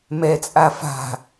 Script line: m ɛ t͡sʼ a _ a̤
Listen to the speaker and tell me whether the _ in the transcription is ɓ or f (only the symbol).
f